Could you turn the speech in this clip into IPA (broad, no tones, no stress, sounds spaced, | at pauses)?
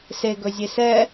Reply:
s e ɡ ɵ zʲ e s ɛ